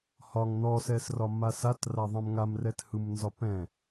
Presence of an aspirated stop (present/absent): absent